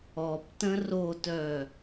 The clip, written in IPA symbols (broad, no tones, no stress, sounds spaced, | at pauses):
ɔ p t ə̃ r o t œ